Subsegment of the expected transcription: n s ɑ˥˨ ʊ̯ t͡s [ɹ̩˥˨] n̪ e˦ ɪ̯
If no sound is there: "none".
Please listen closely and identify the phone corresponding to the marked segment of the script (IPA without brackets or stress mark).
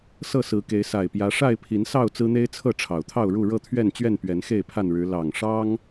ɹ̩˦